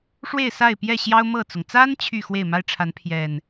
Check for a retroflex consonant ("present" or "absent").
present